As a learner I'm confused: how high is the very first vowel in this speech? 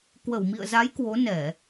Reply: mid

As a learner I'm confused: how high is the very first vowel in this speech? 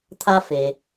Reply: low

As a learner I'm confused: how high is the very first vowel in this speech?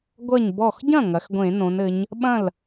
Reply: low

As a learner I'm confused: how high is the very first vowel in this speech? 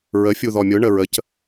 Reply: mid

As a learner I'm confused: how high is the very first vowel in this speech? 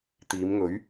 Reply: high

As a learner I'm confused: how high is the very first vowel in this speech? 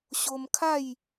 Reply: mid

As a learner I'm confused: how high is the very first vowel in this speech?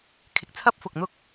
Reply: high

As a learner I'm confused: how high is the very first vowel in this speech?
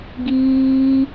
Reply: high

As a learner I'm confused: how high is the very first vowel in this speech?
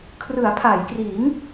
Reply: high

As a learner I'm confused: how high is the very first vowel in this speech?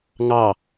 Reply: low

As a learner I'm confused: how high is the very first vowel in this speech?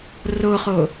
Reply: mid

